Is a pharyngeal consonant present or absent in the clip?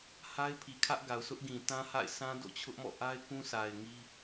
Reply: absent